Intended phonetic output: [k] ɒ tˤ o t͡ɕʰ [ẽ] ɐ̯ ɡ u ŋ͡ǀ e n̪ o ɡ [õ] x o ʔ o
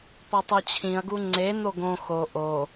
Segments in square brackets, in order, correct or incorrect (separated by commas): incorrect, incorrect, correct